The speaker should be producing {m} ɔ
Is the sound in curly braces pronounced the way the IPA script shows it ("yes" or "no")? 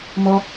yes